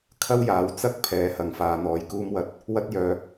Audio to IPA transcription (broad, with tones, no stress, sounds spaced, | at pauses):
kʰ ɐ˥ w j aː˨˥ w t͡s ɐ˥ k̚ pʰ ɛː˨˥ h ɐ˨ ŋ f aː˨˧ n̪ ɔː˨ j k uː˧ m w ɐ˨˥ t̚ | w ɐ˥ t̚ j œː˨